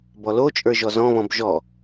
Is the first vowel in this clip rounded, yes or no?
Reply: yes